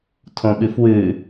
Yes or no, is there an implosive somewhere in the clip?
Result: yes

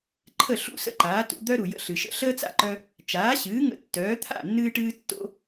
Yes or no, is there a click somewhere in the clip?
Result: yes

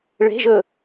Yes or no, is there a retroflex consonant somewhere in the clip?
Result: yes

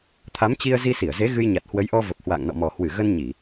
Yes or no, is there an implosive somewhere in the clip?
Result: no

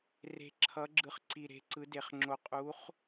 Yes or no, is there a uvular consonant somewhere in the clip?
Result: yes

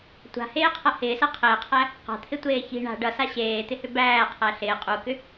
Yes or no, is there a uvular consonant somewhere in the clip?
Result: yes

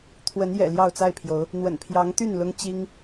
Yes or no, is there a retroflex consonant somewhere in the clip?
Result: no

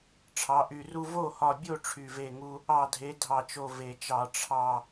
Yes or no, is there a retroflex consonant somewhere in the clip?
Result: yes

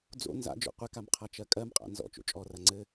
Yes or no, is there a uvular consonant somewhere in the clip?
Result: yes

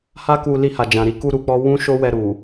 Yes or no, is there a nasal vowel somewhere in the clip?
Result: yes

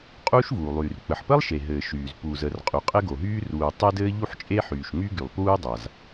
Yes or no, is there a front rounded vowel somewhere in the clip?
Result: yes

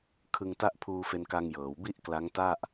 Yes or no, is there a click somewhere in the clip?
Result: no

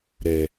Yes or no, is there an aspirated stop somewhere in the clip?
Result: no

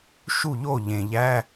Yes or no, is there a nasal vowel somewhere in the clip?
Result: yes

